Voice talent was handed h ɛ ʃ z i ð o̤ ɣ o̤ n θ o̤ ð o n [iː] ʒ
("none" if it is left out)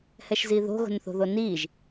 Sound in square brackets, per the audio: iː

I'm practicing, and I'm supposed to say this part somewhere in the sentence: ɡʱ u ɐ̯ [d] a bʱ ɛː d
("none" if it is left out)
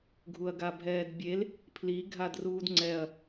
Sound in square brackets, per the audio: ɡ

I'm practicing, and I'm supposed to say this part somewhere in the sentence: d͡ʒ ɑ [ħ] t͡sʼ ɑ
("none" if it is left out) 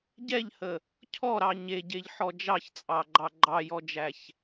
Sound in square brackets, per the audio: ç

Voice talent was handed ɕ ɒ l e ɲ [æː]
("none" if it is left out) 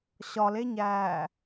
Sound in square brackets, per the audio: æː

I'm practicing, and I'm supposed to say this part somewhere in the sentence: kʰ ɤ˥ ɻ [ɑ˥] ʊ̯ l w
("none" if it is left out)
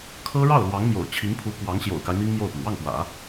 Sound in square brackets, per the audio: ɑ˥˩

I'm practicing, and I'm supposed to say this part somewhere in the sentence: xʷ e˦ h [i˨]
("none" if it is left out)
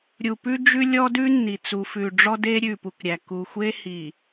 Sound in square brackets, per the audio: i˨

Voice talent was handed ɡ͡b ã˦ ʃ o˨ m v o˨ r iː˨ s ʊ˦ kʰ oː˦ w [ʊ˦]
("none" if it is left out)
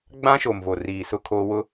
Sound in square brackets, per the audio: ʊ˦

